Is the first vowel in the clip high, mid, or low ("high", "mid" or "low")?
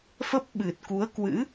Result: mid